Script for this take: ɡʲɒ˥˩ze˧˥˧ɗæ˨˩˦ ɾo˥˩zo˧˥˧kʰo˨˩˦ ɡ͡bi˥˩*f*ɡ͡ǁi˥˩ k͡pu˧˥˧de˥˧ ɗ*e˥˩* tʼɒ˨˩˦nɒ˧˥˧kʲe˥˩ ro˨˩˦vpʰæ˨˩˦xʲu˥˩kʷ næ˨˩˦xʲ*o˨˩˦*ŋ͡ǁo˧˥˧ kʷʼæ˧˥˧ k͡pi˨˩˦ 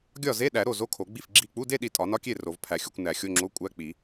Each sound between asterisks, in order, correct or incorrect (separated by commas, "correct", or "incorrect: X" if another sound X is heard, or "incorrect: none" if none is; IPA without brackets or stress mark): correct, incorrect: i˥˩, incorrect: o˧˥˧